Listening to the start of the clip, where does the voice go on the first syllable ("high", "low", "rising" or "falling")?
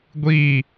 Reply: falling